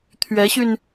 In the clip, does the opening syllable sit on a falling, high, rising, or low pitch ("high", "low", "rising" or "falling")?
rising